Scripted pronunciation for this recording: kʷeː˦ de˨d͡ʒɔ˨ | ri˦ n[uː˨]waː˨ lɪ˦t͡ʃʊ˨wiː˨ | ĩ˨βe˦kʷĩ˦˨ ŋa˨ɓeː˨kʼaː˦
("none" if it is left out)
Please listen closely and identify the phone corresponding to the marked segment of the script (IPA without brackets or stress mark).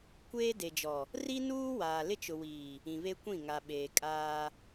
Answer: uː˦